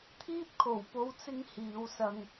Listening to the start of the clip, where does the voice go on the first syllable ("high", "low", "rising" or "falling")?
high